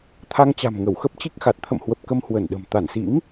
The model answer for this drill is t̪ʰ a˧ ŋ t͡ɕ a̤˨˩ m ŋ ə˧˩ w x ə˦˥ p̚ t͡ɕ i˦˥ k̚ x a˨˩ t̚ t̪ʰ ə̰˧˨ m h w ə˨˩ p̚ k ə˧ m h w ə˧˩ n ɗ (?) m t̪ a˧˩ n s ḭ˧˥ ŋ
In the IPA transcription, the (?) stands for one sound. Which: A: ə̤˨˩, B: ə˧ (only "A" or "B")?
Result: A